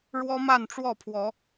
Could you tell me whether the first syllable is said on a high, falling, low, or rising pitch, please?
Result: high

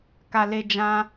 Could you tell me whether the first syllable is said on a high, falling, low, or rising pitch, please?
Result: low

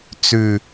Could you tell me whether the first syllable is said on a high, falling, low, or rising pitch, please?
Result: low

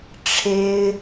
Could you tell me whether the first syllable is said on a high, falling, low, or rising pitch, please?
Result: high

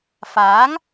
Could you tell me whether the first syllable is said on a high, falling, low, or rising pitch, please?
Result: rising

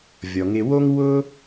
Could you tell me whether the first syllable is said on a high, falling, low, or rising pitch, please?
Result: low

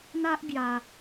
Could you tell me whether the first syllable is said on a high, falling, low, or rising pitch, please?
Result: high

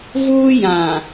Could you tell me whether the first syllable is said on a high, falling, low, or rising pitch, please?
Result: high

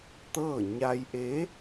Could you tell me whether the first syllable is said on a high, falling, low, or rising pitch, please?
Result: falling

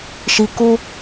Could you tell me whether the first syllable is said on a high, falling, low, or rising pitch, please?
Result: low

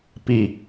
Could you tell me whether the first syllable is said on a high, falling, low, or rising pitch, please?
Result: low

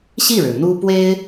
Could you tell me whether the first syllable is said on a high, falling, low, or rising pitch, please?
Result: falling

